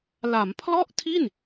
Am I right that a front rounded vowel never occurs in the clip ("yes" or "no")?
yes